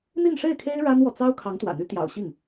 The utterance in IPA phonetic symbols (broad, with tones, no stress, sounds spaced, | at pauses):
n̪ i˥˧ n ʂ e˥˩ ɪ̯ kʰ e˥ ɪ̯ ɻ a˥ n w ɔ˨ t͡s ɑ˥ ʊ̯ kʰ ɑ˧˥ ŋ t̪ w ä̰˨˩ n̪ y˧˥ t̪ j ɑ̰˨˩ ʊ̯ ɕ i˥˩ ŋ